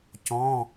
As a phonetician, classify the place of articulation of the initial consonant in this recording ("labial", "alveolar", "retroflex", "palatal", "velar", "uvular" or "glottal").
palatal